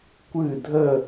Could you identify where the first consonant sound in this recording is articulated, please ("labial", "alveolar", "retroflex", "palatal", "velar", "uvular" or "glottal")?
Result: velar